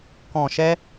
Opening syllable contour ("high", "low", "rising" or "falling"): low